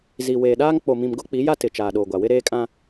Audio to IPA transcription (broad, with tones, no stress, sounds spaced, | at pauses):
z i˨ w eː˨ ɗ aː˦ ŋ k͡p o˨ m ĩ˨ m ɡ ʊ˦ k͡p i˨˦ j a˦ t ɪ˨ t͡ʃ aː˨ ɗ oː˨ ɡʷ a˨ w ɪ˦ ɾ eː˦ kʼ ã˦